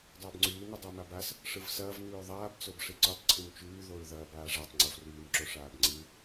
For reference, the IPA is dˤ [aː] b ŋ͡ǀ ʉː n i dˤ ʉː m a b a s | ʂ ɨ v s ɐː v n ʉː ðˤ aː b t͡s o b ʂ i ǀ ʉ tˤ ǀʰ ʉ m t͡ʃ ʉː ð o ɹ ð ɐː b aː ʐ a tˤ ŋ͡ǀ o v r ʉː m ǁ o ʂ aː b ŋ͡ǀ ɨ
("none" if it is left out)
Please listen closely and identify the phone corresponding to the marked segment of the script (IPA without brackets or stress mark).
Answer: ɐː